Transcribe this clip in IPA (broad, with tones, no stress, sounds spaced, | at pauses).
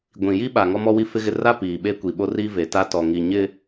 ɡʷ ĩ˨ j i˦ ɓ a˨ ŋ ɔ˦ m ɔ˦ w i˦ f ɪ˦ ɣ ɪ˦ r a˦ p iː˨ ɓ e˦ kʷ i˨ ɓ o˦ r i˦ v e˨ t a˦ t ɔ˨ ŋ i˨ ɲ ɪ˦